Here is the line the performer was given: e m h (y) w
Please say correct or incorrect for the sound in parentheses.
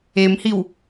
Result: incorrect: i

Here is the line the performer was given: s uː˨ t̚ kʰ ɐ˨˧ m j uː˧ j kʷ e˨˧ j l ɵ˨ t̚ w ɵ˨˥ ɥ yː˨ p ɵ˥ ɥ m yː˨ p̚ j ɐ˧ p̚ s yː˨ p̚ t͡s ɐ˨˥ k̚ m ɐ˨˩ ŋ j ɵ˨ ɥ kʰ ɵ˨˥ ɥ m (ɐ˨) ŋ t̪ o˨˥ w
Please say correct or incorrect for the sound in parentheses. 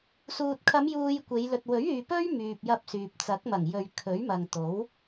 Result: correct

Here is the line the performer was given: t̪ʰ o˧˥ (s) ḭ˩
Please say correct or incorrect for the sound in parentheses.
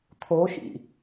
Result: incorrect: ʃ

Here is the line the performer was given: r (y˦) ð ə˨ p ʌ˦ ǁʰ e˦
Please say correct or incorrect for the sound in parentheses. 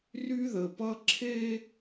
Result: correct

